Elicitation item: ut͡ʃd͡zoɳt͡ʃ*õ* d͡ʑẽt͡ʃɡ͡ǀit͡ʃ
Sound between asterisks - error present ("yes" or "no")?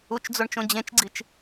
no